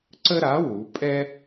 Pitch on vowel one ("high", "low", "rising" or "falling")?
high